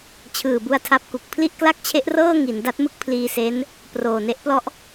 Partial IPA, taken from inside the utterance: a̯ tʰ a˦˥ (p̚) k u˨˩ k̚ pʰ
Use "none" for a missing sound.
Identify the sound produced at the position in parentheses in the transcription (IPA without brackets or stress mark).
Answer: p̚